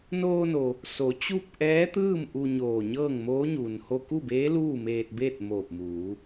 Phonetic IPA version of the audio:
n oː˧ n o˩ | s o˩˧ t͡ɕ u˥˨ p̚ ʔ ɛː˧˥ t̪ ɯː˥˨ m ʔ u˧ ɲ oː˧˩ ɲ ɤː˥˨ ŋ m oː˧˥ ɲ uː˩ n h o˧ k u˥˨ b eː˧˥ l uː˥˨ m eː˧ t̚ b eː˥˨ t̚ m oː˧˩ p̚ m uː˩˧

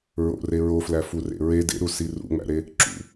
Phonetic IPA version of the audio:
ɹ o̰ r e ɹ o f l æ f u r ḛ ɹ e d ḛ ɾ u s i r ṵ ŋ͡m æ̰ ɾ e | ǁ ṵ

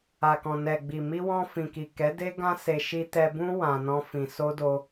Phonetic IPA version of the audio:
a˨ k ɔ̃˨ n ɛ˨ ɡ͡b i˨ m i˧ w ɔ̃˧ f ĩ˨ k i˨ k ɛ˨˦ d e˦ ɡ ã˦ s e˧ ʃ i˧ t ɛ˧ b ũ˦ w ã˧ n ɔ̃˦ f ĩ˧ s o˦ d o˧

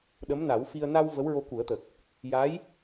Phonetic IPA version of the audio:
ɗ ə˧˥ m n a˨˩˦ w f i˧ ə̯ n a˧ w v ə˧˥ w ɹ o˧ k u˨˩˦ ə̯ t̪ ə˨˩ k̚ | j a˧˥ j

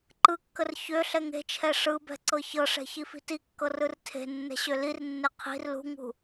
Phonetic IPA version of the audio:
ǃ ɯ kː ə r ç ø ɬ ɛ ŋ e̤ t͡ʃʰ ɛ ʂ ɯ b ɛ̤ ǀ ɤ ç ɤ ʂ ɛ̤ ç i f i̤ t i kː ɤ r ɯ r tʰ e̤ nː ɛ̤ ɕ ø l i r nː e qʰ i̤ r l ṳ ŋ ṳ

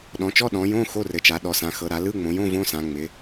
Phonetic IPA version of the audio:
ɗ ɔ̃˩˧ t͡ʃ ɔ˧˥˧ ɗ ɔ̃˩˧ j õ˧˥˧ x o˧˥˧ r ɘ˩˧ t͡ʃ a˩˧ ɗ ɔ˩˧ s ã˩˧ x ɤ˩˧ ɾ a˩˧ l ɯ˧˥˧ ŋ͡m õ˩˧ j õ˧˥˧ v õ˧˥˧ s ã˩˧ ŋ͡m ɪ˩˧

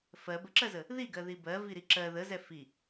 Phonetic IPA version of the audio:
f ɜ b ə ǁ ɜ z ə | ð i ɡ ɜ ð i b ɜ v i ɾ i ǁ ɜ ð ə z ɛ f i

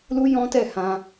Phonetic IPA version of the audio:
l u˦ j ɔ̃˦ t ɛ˦˨ h ã˧

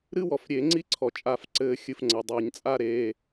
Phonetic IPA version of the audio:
ɾ ɨ˥ w ɔ˩ f ɾʲ e˨˩˦ ŋ͡ǀ i˥ ǀʰ ɔ˩ t͡ʃʼ a˨˩˦ f ǀ ɘː˨˩˦ xʲ ɨ˩ f ŋ͡ǀ ɐ˩ dˤ ɘː˨˩˦ ɲ t͡sʼ a˥˧ ɾ e˩˧˩

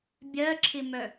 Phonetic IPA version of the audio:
bʲ ɜ ǁʰ ɪ m œ

